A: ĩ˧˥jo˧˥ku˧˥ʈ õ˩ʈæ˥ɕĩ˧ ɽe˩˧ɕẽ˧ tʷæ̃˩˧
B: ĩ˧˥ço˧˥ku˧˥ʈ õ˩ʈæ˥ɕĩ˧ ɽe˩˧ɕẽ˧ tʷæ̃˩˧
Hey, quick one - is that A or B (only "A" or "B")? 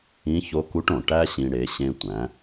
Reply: B